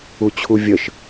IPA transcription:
u t͡ɕʰ u vʲ ə ʃ

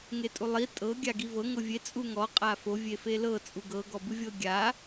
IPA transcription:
ŋ e tʼ u lˠ i tʼ ɤ ɡʲ a ɡ i v ɤ ŋ ɤ vʲ e t͡sʼ u ŋ ɔ qʼ a f o vʲ e f e l ɤ t͡sʼ u ɡ ɤ ɡ ɔ b ɯ vʲ ɤ ɡʲ a

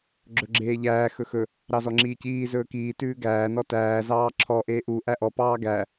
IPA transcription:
ɡ͡ǁ ɵ ɡ͡ǁ eː ʎ æː x ɵ x ɵ | ɾ ɑ z ɔ ŋ͡ǁ iː c iː z ɵː k iː t ʉː ɡ æː n ɔ t æː z ɑː ǁʰ ɔ ʔ eː ʔ u ʔ æ ʔ ɔ p ɑː ɡ æ

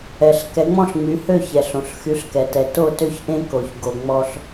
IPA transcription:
ɛ˩ ɬ k ɛ˩˥ ŋ͡m ɔ̃˥˩ ɬ ŋ͡m y˩˥ h ø˥˩ ç ɛ˩ ɬ õ˩ ɬ x y˩˥ ɬ k ɛ˩ t ɛ˩ t o˥˩ t ø˥ ç ʔ ẽ˥ k o˩ ç ɡ o˩ ŋ͡m ɔ˧ ɬ

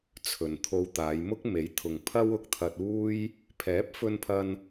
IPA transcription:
t͡sʰ ɵ˨ n t̪ʰ o˧ w t̪ aː˨˧ j m ʊ˥ k̚ m e˨˥ j t̪ʰ ʊ˨ ŋ pʰ ɐ˥ w ʊ˨ k̚ t̪ʰ ɐ˧ t̚ uː˥ j | pʰ ɛː˨˥ p̚ f ɵ˧ n pʰ ɐ˧ n

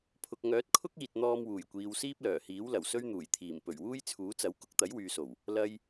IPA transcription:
pʰ ʊ˨ k̚ ŋ œː˨˥ t̚ kʰ ʊ˥ k̚ iː˨ t̚ n̪ ɔː˧ m w uː˨˩ j kʷ iː˨ w s iː˥ p̚ l œː˨˩ h iː˨˥ w l ɐ˨˩ w s ɵ˥ ɥ n̪ uː˨˩ j t̪ʰ iː˨˩ m p ɵ˨˩ ɥ w uː˥ j t͡sʰ uː˨˥ t͡s ɐ˨˥ w k ʊ˨˥ k̚ t̪ ɐ˨˥ j w yː˨ s o˨˩ w | l ɐ˨ j

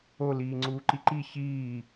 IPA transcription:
o l iː ŋ͡ǀ uː ǃ i ǃ i ç iː

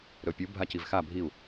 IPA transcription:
ɾ ɵ pʲ u bʱ a c i v x a bʱ i u̯

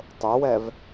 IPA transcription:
tˤ o w ɛ v

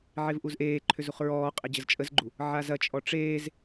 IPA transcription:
ʕ e v ʔ u z ʔ eː ǃʰ ʏ z u χ ɹ ɔː qʼ ɛ d͡ʑ ə z t͡ʃʼ ə z ɡ͡ǃ u | ʕ a z ɐ t͡ʃʼ ɔ ʈ͡ʂ eː z

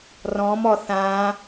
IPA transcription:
r ɔ̃ m ɔ θ ã

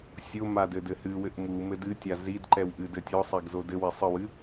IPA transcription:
sʲ o m a d ɘ d ɘ h ɨ w ɘ ʔ m u m ɘ d ɨ tʲ a z i d ǃ ɛ w ʔ ɨ d ɘ tʲ ɔ sˤ e ɡ z o d ɘ w e sˤ ɨ w ɨ

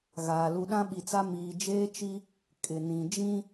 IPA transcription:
ɣ aː˨ l u˨ ɗ ã˦ ɓ i˨ t͡s a˦ m iː˨ d͡ʒ eː˦ t͡ʃ i˦ | kʼ ɪ˨ n ĩ˨ d͡ʒ ĩ˦

